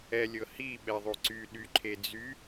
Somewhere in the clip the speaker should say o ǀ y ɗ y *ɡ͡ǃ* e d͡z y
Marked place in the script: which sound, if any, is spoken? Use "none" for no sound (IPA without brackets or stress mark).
ǃʰ